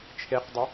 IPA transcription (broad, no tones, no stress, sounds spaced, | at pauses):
t͡ʃʰ e q dˤ ə